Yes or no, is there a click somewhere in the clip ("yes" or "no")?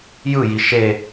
no